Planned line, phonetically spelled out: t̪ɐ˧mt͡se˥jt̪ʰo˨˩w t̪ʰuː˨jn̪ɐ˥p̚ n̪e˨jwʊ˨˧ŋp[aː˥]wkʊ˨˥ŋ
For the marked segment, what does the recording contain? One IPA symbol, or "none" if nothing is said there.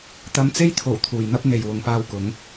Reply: aː˧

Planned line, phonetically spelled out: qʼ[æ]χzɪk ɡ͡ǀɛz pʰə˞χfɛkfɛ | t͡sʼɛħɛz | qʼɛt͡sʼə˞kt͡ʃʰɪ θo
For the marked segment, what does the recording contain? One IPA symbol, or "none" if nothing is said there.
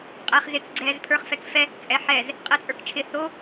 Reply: æ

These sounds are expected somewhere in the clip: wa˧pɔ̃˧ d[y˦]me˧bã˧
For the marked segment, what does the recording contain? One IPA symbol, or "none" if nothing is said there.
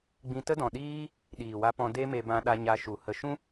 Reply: e˦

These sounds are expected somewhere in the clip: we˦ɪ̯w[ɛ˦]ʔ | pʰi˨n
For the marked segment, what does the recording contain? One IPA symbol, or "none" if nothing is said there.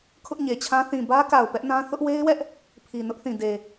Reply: ɛ˦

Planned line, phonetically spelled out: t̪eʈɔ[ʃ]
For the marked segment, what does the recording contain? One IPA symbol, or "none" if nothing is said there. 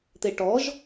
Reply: ʒ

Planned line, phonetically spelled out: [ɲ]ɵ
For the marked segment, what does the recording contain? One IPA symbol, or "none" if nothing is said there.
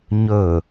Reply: ɲ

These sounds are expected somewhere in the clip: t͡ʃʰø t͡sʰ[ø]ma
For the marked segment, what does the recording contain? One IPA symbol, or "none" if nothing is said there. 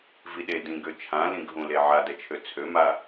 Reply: ø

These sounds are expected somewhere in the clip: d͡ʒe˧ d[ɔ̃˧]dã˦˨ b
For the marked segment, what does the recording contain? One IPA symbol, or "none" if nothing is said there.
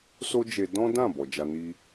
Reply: ɔ̃˦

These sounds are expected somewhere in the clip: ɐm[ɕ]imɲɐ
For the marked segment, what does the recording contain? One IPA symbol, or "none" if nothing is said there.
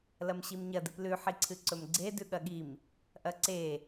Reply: ɕ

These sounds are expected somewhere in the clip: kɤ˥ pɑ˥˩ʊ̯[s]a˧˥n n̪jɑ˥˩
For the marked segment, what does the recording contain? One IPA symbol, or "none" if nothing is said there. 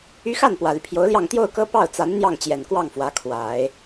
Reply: t͡s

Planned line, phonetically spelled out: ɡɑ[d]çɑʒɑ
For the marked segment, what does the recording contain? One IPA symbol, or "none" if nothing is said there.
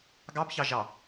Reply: b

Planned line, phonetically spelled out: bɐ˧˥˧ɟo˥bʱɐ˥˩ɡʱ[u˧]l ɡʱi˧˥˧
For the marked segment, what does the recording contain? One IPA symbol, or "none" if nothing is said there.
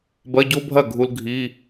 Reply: u˧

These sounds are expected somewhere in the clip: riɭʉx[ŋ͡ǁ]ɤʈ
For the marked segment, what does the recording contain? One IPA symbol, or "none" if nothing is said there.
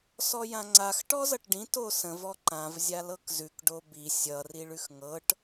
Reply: ŋ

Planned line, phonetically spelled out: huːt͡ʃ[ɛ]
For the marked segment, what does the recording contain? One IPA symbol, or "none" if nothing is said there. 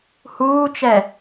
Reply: ɛ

